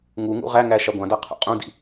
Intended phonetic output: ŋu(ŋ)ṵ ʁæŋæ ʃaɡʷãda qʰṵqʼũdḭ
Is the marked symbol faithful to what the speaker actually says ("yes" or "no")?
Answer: yes